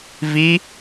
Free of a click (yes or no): yes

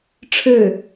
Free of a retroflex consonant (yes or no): no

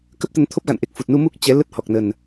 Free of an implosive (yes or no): yes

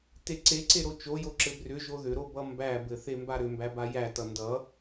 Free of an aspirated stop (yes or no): yes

